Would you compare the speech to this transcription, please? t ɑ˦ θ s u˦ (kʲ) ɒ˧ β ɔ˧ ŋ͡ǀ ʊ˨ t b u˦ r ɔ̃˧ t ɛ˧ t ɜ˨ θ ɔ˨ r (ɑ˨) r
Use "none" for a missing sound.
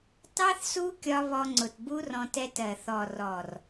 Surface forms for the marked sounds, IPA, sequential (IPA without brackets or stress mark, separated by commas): kʲ, ɔ˨